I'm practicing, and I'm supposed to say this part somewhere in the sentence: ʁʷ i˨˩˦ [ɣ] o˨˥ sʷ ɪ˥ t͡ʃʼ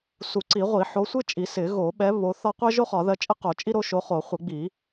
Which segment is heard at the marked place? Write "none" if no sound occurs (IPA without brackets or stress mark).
ħ